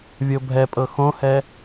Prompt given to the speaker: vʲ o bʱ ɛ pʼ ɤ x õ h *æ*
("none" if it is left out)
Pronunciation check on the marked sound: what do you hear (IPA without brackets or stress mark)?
ɛ